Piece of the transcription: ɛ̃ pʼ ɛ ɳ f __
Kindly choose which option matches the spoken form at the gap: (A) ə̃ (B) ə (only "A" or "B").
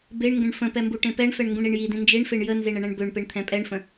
A